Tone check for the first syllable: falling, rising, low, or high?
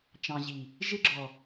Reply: low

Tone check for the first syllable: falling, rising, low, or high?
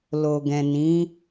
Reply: low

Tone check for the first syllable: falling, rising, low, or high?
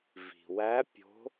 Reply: low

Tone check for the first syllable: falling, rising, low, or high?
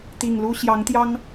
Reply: low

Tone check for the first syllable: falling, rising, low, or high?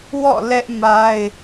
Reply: falling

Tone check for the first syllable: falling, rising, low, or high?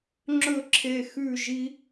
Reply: falling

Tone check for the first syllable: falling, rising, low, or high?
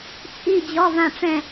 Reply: falling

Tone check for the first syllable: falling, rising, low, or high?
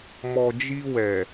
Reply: low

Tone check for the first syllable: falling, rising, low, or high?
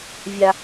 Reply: low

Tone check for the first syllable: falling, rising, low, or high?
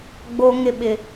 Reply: high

